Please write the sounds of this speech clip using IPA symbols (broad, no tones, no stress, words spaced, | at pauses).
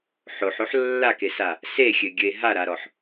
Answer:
ħoħoħ lːakesa | sexʲɘɡʲɘe̯ ɦaɾaɾɔħ